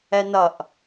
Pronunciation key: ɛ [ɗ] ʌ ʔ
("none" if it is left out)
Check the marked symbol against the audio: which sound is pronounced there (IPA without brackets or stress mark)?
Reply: n